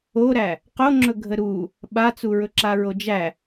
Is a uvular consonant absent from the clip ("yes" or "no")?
no